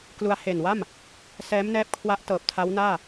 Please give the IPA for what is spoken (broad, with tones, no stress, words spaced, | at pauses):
klu˧a̯ he˨˩nwa˥˩m | sɛː˦˥mnɛː˦˥p̚kʰwa˦˥ʔtɤː˨˩p̚ tʰa˦˥wnaː˥˩